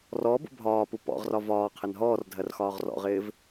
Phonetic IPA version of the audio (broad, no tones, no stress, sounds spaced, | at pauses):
r ɔː b ṵ bʱ ɒː p u p ɔ̰ ʁ r ɒ v ɒː qʰ ɪ n ɦ ɔː r dʱ ɜ r x ɒː ʁ r ɔ̰ ʁ ɪː v